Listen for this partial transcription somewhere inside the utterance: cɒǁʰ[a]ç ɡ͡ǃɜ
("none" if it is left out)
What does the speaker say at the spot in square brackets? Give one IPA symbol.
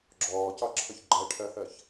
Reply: ʌ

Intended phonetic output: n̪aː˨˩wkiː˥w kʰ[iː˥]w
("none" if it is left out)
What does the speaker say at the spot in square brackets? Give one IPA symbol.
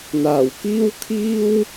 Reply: iː˥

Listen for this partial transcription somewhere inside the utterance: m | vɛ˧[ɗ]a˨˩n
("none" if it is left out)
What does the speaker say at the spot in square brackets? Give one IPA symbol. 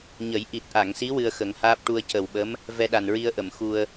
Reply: ɗ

